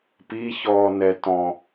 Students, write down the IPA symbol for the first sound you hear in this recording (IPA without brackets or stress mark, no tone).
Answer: p